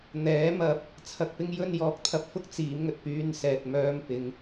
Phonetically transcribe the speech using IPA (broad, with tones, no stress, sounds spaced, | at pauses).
n̪ ɛː˨˥ m ɐ˨ p̚ | t͡sʰ ɐ˨ k̚ p ɪ˥ ŋ j ɵ˧ n j ɔː˨˥ k̚ t̪ʰ ɐ˨ p̚ f ʊ˥ k̚ t͡s iː˨˧ m ŋ ɵ˨ t̚ p yː˧ n s ɛː˨ t̚ m œː˧ m p ɪ˨˧ ŋ